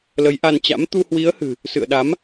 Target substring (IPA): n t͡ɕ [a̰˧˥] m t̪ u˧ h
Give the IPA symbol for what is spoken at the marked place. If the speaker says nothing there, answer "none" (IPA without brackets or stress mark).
a̰˧˥